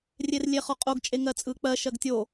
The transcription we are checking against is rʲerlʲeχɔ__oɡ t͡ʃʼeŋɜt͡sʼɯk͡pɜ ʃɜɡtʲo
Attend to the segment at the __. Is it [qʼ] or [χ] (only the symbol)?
qʼ